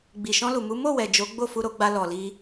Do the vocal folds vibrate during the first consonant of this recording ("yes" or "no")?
yes